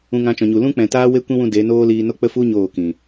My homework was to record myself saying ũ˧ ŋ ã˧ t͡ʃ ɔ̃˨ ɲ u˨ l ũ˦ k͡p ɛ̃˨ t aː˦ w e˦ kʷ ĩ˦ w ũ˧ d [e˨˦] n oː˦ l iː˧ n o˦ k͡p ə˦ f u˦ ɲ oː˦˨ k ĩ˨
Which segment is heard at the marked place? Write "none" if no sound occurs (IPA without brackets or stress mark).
e˨˦